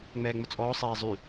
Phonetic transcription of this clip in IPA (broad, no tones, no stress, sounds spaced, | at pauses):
ŋ͡m ɛː ŋ͡m ʊ t͡sʼ ɔː sˤ ɛː zˤ y